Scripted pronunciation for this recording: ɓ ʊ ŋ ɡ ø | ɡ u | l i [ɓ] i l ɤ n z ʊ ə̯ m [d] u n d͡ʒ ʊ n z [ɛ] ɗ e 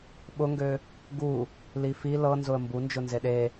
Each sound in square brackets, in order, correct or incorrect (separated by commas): incorrect, incorrect, incorrect